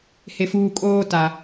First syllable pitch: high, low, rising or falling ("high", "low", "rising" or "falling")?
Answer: low